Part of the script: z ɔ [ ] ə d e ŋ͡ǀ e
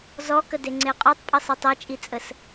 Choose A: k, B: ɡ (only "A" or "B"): A